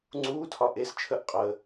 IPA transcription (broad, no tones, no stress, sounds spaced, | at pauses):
ŋ͡ǀ uː tʰ ɒ ʔ e s t͡ʃʰ ə ʔ qʼ ə